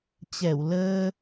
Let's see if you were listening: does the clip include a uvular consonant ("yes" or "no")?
no